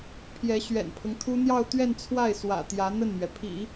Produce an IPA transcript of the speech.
pʰjɛ˧˥ɕɥɛ̰˨˩npʰɤ˦ŋt̪ʰu˥ n̪jɑ˥˧ʊ̯t̪ɥɛ˥˧n t͡sʰwa˥˩ɪ̯swä̰˨˩ t̪jä˧˥ n̪ə˥˩nn̪ɥɛ˩ pʰḭ˨˩˦

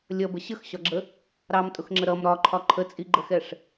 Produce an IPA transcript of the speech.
lʲʌbə ɕəxɕɒɡ͡ǁə | ɾɑmtʼʊxŋ͡ǁə ɾʌm ɾɒǃʰɒ ǃʰət͡sʼiɡ͡ǃəxɛʂ

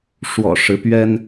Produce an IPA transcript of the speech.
ʂwɔ̰˨˩ʂɻ̩˨˦ pɥɛ˦n

